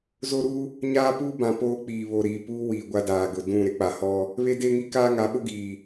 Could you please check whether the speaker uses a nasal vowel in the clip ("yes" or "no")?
yes